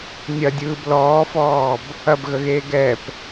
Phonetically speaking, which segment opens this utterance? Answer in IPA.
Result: nʲ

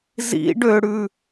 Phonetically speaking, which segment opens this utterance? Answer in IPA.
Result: z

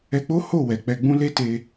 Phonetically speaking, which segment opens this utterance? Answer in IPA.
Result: ɛ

